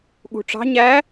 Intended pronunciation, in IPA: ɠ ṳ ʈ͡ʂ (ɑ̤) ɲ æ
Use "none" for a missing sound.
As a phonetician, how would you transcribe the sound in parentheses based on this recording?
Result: ɑ̤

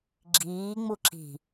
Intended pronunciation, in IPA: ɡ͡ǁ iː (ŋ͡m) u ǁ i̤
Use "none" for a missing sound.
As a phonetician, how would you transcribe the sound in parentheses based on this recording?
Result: ŋ͡m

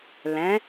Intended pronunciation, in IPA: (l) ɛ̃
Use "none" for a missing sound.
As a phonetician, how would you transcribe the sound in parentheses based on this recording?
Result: l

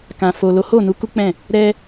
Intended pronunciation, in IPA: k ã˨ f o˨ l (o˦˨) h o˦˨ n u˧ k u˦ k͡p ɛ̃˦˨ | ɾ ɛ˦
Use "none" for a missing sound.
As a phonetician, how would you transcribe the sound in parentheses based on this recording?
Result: o˨˦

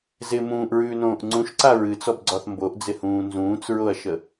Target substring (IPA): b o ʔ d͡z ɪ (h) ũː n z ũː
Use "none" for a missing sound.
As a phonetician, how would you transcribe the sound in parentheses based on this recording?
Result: h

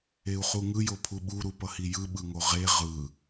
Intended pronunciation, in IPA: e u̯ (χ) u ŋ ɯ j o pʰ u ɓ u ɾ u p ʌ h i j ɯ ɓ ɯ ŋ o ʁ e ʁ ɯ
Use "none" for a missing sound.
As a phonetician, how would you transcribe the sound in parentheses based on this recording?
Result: χ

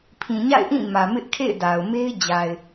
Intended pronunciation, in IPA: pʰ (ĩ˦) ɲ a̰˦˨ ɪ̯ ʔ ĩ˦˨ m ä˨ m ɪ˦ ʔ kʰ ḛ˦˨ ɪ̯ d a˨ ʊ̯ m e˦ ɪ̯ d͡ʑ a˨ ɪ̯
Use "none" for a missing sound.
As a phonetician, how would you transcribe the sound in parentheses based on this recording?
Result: ĩ˨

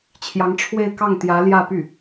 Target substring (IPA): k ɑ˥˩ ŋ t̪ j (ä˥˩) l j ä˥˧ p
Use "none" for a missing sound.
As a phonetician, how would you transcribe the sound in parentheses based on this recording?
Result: ä˧˥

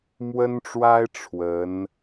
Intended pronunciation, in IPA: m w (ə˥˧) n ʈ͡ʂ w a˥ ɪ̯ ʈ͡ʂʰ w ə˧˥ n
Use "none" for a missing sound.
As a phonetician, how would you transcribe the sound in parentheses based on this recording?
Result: ə˥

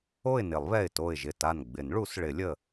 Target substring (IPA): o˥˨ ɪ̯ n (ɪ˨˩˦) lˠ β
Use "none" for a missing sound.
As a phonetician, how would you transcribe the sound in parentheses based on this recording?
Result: ɪ˨˩˦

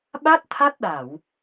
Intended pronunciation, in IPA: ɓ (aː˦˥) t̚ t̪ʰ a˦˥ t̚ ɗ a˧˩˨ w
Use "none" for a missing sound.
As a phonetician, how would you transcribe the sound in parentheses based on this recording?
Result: a˦˥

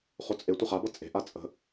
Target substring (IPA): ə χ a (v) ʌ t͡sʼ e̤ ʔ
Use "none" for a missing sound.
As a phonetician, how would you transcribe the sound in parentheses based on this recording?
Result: b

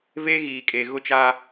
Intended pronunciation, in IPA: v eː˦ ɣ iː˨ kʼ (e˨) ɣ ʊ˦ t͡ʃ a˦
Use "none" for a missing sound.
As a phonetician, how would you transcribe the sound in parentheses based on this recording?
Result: e˨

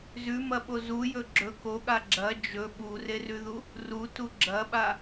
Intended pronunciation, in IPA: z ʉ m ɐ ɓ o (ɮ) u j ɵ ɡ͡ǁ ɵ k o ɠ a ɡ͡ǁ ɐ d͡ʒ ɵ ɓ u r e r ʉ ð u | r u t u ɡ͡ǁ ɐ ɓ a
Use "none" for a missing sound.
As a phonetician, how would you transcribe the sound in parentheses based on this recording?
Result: z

